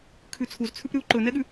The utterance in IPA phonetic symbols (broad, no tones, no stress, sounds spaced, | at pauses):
kʰ ʉ t͡sʰ u z t͡sʰ ʉ p ɾ ʉ u̯ ǃ ɵ n ɛ ɠ ʉ